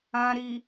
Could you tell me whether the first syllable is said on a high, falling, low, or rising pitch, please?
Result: low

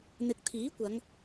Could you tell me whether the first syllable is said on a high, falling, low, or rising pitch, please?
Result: low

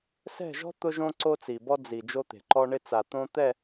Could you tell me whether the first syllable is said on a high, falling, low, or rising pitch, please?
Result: falling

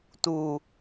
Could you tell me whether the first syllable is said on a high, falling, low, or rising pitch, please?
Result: low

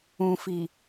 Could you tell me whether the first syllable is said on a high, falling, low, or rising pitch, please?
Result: low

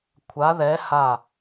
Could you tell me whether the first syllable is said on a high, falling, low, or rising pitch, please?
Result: rising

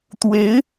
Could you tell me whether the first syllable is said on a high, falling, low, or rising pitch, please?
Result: rising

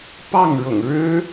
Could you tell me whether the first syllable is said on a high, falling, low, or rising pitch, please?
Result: falling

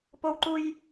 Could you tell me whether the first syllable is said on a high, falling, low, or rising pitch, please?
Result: high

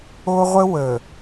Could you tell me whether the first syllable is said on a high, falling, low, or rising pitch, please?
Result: high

